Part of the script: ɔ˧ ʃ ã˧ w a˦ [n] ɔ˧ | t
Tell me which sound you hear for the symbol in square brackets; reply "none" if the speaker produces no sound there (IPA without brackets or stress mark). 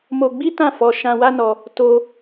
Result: n